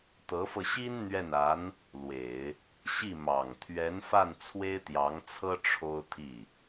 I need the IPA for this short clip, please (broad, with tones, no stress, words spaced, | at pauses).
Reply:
t̪ɤ˧˥fɤ˧ɕi˥n n̪ɥɛ˥˩na˧˥n | lwe˨˩˦ɪ̯ | ɕi˥˩mɑ˨˩ŋ t̪ʰɥɛ˧˥nfa˥˩n t͡sʰwe˥ɪ̯t̪jɑ˧˥ŋt͡sʰɤ˥ ʈ͡ʂʰo˥ʊ̯t̪ʰi˥˩